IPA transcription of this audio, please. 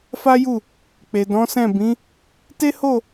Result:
f a˦ j u˦˨ | k͡p e˨ d ɔ̃˨˦ s ɛ̃˦˨ b ĩ˨˦ | t e˦ h o˦˨

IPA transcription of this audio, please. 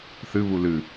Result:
θ ɨ β u l ɨ

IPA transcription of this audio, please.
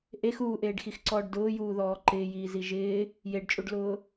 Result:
ʔ e x uː ʔ eː ɖ x i x ǀ ɔː ɖ d ʊː j uː ð ɔː ǃ ɪː j iː z i ʒ ɪː | j e ɖ t͡ʃʼ u ɖ l ʊː

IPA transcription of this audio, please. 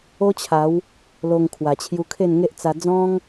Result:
o˦ t͡ɕʰ a˨˦ w | l o˧ ŋ kʰ w a˨˩ t͡ɕʰ j u˧ kʰ e˥˧ n ŋ e˦ ʔ t͡s a˧ d͡z ɔ̃˦ ŋ

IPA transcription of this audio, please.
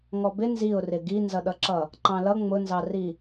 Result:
ŋ ɔ b ɪ n z i ʊ̯ r ɪ ɡ i n z ʌ ɗ ʌ ǁ ʌ | ǃ ɑ̃ l ʌ ŋ͡m ʊ n z ɑ r i

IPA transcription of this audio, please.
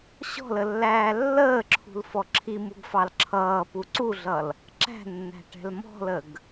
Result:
ɕ ɔ̤ l ə lː æː lː əː ǁʰ ṳ l f ɔ ǁʰ i m u ɡ f ɑ l ǁʰ ʌː p u ǀ u ɮ ʌ l | ǁ æ̤ nː æ̤ ʈ ɛ̤ l m ɔ̤ l ə ɡ

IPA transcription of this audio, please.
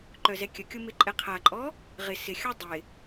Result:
ǃ œ z ɛ kʲ ə kʲ ʊ m ɪ ǃʼ ɛ qʰ a ǃʼ ɔ | ʁ ɪ s ɪ xʲ ɔ dˤ ɪ

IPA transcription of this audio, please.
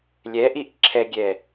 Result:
lʲ ɛ ʔ i ʔ ǁʰ ɛ ɡʲ ɛ

